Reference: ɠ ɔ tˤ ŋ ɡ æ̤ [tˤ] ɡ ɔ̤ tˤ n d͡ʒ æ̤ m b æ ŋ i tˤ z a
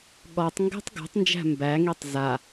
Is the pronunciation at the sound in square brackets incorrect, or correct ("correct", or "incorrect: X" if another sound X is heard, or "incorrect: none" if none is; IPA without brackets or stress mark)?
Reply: correct